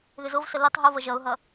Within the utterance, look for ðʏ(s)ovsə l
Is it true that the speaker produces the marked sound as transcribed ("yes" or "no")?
no